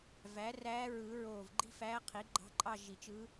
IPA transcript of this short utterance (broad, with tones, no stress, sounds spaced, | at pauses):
v æ˩˥ r æː˧˥ ɹ ɯ˨˩˦ ɹ oː˧˩ v ɡ͡ǃ i̤˥˧ f æː˧˥ qʰ i˩˥ ɡ͡ǃ ɑ̤˧˥ ǃʼ ɑ˥˧ ʒ i˨˩˦ t͡ʃ ɯ˧˥